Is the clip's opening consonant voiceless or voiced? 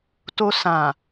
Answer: voiceless